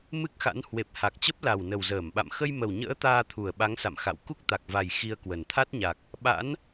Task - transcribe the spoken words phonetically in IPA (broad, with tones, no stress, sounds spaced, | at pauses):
m ɨ˦˥ k̚ x a̰˧˥ n h w e˨˩ p̚ h a˨˩ k̚ t͡ɕ ə˦˥ p̚ l a˨˩ w n ə˨˩ w z əː˧˩ m ɓ a̰˧˨ m x ə˧ j m ə˨˩ w ɲ ə̰ː˧˥ t̪ aː˧ t̪ʰ u˨˩ ə̯ ɓ a˨˦ ŋ s a̰˧˨ m x a̰˧˨ w k u˦˥ k̚ t̪ a˨˩ k̚ v a˨˩ j x i˧ ə̯ k w ə˨˩ n t̪ʰ a˦˥ t̚ ɲ a˨˩ k̚ | ɓ a̰˧˥ n